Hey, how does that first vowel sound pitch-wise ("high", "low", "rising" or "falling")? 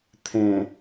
low